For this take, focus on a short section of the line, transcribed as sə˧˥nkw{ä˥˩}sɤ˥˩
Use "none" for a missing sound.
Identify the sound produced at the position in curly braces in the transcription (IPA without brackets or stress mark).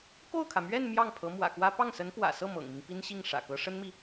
ä̰˨˩